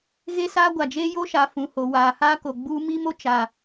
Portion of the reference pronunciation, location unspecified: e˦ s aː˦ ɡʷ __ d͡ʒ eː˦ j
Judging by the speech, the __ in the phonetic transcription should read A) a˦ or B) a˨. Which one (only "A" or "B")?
B